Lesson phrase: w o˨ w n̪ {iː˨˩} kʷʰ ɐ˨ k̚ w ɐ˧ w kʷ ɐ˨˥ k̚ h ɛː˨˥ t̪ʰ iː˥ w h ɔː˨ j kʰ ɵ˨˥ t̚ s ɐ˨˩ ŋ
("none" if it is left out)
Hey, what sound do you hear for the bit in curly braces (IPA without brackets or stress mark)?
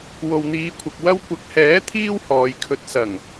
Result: iː˨˧